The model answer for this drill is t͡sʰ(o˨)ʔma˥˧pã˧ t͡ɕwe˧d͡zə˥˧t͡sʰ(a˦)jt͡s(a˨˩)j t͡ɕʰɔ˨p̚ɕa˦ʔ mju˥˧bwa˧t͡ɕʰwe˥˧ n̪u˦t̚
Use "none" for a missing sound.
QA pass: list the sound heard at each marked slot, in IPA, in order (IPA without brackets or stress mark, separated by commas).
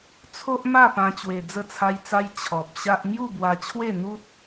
o˦, a˦, a˦